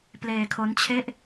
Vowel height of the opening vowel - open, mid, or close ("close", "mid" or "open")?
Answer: mid